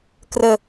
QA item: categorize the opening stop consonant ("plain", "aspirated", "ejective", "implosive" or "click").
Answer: plain